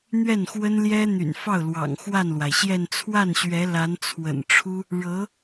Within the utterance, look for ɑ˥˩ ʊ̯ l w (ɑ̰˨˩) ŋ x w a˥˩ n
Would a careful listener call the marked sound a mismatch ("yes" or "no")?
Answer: no